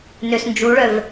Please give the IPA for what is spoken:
n ø s n d͡ʒ u ɭ œ v

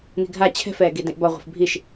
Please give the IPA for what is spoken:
n i̤ ɡʱ a t͡ɕʰ ɛ̤ f ɛː ɡ i d ĩ ʔ b ɒ ʁʷ i̤ f bʱ i ʃ

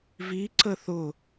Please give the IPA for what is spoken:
v i ǀ ə θ ʊ

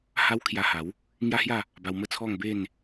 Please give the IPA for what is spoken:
h a˦ w kʰ j a˧ h a˨˦ w | ŋ j a˦ h j a˥˧ | b a˧ w m ə˥˧ t͡sʰ ɔ˥˧ ŋ b e˥˧ n

